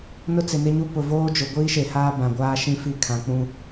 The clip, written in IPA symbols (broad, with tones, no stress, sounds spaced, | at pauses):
n ʊ˦ t͡s ɪ˨ n ɪ˦ ɲ u˦ p ʊ˨ v oː˦ d͡ʒ ʊ˨ ɡʷ iː˦ ʃ e˨ h aː˦ b ã˨ ɡʷ aː˦ ʃ ĩ˦ f i˦ kʰ ã˨ k͡p ũ˦